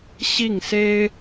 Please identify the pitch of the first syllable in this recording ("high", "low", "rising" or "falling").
falling